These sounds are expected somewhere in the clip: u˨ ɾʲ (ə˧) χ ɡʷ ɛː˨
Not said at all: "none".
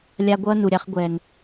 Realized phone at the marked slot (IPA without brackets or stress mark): a˧